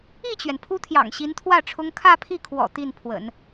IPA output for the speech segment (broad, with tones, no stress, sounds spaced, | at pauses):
i˥˩ t͡ɕ ɥ ɛ˩ n pʰ u˥ t̪ʰ j ɑ̰˨˩ ŋ ɕ i˧˥ n t̪ʰ w ä˥˩ ʈ͡ʂʰ ʊ˥ ŋ kʰ ä˥˧ pʰ i˥˩ kʰ w ɔ̰˨˩ t̪ i˥˩ n pʰ w ə̰˨˩˦ n